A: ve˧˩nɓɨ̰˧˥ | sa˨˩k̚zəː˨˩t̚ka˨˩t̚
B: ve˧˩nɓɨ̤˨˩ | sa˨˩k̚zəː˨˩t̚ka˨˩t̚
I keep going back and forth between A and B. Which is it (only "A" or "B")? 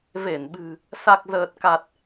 B